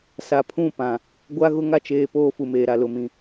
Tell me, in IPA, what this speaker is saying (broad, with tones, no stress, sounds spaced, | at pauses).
s a˨ pʰ ũ˦˨ p ã˨ | ɡʷ a˦ ɣ ʊ˦ ŋ a˦ t͡ʃ eː˨ p oː˦ f u˨ m eː˨ ɾ a˨ l ʊ˨ m ĩ˨